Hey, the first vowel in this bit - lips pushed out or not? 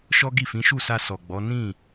yes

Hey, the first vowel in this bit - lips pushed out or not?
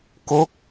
yes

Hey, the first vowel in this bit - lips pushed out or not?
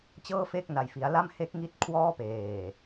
no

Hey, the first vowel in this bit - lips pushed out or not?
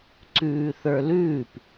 yes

